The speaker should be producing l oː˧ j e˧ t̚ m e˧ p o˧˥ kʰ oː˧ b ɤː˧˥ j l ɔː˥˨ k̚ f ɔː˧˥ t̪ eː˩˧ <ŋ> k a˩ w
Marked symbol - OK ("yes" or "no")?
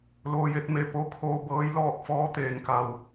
yes